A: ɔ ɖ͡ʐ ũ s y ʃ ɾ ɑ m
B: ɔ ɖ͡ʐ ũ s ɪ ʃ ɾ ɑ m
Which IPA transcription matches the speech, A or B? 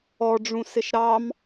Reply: B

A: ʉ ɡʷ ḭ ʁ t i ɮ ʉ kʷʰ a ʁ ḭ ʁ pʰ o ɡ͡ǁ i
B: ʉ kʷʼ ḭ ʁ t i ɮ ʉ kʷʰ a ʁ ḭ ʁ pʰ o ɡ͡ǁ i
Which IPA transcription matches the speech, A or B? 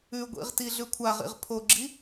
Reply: A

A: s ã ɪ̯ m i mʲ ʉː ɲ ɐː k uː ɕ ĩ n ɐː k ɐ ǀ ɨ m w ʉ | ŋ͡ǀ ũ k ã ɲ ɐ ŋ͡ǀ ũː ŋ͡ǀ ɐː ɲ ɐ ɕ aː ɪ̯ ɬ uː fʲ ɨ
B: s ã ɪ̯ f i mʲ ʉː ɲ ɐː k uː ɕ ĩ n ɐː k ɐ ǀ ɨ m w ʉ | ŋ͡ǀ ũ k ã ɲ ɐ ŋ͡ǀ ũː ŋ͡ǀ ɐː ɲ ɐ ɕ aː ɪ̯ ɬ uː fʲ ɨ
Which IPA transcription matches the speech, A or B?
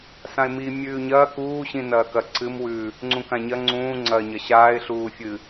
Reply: A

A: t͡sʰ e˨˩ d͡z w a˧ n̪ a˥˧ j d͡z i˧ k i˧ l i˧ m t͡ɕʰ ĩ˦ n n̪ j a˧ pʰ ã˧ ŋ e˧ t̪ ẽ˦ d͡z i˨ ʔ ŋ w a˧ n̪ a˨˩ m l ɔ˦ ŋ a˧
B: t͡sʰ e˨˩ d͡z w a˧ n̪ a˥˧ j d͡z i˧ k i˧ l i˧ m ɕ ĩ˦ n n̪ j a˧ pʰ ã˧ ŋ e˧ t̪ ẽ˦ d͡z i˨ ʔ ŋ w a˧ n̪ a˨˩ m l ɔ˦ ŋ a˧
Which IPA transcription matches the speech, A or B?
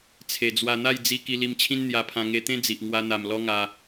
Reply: A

